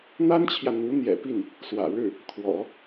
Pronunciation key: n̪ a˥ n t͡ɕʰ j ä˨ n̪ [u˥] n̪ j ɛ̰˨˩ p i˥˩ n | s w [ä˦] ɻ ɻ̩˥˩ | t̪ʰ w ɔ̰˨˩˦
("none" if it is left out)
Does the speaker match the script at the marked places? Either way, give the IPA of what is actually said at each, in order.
u˧˥, ä̰˨˩

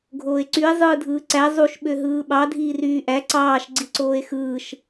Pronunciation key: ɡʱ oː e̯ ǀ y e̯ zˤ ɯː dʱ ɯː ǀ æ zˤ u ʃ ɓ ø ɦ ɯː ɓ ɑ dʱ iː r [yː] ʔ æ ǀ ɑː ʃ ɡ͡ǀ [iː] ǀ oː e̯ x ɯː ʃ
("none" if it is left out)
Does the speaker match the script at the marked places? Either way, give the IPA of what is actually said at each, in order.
yː, i

